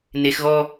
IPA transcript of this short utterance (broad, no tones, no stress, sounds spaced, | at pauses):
n e x ɣ ɔ